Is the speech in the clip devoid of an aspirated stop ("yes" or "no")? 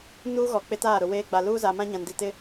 yes